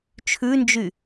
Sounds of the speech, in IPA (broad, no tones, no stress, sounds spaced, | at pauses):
t͡ʃʰ ʉ n d͡ʒ y